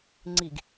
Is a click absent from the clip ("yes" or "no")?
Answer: no